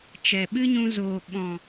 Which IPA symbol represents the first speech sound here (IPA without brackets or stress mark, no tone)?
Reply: t͡ʃ